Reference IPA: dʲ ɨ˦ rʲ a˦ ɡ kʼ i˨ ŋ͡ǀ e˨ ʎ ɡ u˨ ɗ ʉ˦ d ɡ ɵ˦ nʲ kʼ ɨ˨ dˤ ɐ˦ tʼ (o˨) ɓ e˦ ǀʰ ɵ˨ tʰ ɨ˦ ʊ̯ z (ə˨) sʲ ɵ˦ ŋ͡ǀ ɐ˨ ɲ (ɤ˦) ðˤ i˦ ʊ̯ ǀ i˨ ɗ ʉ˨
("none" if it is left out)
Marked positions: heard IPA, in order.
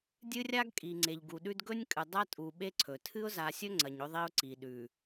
u˨, a˨, ɵ˦

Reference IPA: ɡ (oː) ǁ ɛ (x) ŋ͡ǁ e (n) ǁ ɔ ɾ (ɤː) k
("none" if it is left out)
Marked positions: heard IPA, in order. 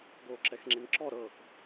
oː, x, n, ɤː

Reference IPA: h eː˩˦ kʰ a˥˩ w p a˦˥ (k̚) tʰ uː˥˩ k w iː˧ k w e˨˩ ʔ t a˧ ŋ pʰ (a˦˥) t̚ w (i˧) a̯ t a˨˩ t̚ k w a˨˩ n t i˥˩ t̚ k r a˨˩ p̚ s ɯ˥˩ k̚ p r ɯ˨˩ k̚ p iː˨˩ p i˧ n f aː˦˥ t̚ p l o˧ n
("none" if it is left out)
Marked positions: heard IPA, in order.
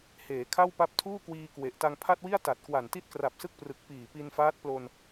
p̚, a˥˩, i˥˩

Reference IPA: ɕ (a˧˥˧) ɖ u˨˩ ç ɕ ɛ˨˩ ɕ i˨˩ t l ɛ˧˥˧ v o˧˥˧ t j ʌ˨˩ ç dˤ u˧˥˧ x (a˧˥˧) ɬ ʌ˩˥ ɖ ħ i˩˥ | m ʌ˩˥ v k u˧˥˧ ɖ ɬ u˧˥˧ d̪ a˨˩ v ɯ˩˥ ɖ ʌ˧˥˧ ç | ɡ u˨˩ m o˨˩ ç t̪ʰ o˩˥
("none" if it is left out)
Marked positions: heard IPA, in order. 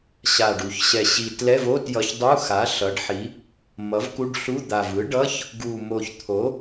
a˨˩, a˩˥

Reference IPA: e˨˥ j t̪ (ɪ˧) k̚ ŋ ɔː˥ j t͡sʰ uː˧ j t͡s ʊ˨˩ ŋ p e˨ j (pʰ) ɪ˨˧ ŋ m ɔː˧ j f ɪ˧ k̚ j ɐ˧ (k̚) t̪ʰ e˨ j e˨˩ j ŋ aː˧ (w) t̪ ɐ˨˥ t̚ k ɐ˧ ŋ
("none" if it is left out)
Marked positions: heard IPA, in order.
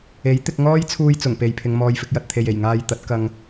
ɪ˧, pʰ, t̚, j

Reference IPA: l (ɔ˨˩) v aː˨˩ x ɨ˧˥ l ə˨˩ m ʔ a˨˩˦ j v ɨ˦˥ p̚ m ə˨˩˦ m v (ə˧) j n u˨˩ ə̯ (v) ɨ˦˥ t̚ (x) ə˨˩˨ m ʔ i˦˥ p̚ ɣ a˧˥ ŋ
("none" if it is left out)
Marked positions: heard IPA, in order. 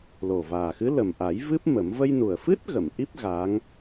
o˨˩, ə˧, f, ɣ

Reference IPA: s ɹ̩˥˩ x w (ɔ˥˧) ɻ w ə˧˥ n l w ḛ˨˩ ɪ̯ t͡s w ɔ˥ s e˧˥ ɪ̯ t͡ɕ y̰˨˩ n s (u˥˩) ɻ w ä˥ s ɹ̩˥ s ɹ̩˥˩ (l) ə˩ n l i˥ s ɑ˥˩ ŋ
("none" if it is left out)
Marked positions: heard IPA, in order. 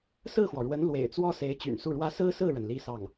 ɔ˩, u˥˩, ɻ

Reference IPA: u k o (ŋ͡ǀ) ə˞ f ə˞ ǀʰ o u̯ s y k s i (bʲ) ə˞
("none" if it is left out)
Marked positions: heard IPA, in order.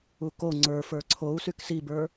ŋ͡ǀ, b

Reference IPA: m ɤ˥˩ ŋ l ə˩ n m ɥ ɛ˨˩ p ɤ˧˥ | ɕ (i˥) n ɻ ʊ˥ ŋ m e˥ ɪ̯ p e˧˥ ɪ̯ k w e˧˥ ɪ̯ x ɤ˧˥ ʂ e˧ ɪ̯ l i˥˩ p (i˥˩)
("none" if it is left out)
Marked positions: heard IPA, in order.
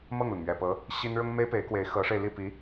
i˥, i˧˥

